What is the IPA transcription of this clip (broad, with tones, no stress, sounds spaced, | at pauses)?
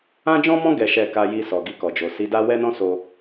ã˦ d͡ʒ ɔ̃˦ m ɔ̃˦ ɡ ɛ˧ ʃ ɛ˧ k a˧ j i˧ s ɔ˨ ɡ i˧ k ɔ˨ d͡ʒ o˨ s i˨˦ d a˦ w ɛ˦ n ɔ̃˦ s o˧